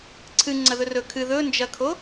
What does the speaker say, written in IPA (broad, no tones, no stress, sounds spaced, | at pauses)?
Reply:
ǀʰ ɨ ŋ͡ǀ ɐ ð ɵ r ɵ kʰ ɨ ð ɵ n d͡ʒ ɐ kʰ o